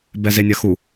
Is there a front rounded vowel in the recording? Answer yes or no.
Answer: no